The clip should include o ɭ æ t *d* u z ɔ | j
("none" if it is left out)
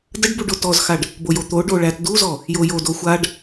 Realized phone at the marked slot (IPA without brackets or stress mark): d